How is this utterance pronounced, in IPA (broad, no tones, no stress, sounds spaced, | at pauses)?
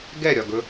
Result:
ɡ ɛ ɾʲ ɒ ɡ ɵ